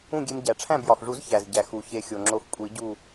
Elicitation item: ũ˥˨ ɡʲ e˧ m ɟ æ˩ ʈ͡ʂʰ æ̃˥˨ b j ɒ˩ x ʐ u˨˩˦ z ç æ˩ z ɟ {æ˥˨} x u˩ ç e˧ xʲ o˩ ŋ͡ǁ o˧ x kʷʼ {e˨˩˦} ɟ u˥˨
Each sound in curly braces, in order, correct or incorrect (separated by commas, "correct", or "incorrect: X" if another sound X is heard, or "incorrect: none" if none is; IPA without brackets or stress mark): incorrect: æ˩, incorrect: i˨˩˦